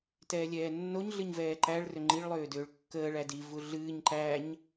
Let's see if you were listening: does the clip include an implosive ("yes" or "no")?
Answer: no